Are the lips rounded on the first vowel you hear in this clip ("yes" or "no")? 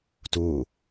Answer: yes